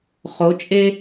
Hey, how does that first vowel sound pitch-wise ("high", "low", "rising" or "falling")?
rising